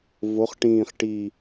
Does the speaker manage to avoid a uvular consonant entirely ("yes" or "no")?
no